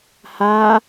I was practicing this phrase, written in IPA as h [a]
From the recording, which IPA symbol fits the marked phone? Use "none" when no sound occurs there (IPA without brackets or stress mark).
a